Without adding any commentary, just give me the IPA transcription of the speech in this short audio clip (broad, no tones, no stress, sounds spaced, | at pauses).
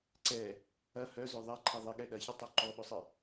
ǀ ɛ | ɐ h œ z œ ðˤ ɛ ǃʰ ɛ ðˤ ɪ ɠ ɛ ɗ ɐ ç ɪ tˤ o ǃ ɔ ɓ ʊ sˤ ɪ